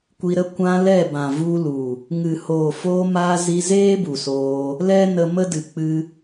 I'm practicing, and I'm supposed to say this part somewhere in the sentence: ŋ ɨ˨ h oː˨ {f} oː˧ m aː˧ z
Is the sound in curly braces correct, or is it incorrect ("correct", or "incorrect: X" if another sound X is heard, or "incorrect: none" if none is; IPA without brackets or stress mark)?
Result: correct